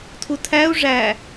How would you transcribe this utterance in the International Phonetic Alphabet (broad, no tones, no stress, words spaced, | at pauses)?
tʰutʰæu̯ ʐæ